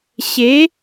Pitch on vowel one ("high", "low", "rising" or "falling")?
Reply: rising